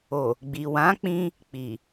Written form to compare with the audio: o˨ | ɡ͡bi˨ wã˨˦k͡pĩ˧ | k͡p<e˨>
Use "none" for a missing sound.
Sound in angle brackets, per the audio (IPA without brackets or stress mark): i˨